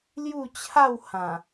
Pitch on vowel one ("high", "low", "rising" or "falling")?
falling